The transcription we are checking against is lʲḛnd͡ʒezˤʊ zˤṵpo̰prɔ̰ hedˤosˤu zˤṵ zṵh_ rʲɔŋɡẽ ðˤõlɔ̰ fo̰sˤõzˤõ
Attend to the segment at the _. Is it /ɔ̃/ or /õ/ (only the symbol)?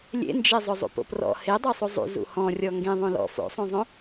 ɔ̃